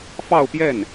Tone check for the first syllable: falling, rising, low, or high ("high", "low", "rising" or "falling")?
falling